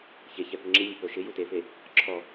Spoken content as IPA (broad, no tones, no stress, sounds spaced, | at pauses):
ç e ç ɛ p ʊ ŋ͡ǁ i nʲ e p o ʃ ɪ j u t e f e | ǁʰ ɔ